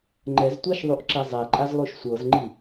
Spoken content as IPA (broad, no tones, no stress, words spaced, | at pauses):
ŋ͡ǃɛztʷaʃðˤuʔǁe zˤɛǃʼazlˠuʃ sʷɤzŋ͡ǃi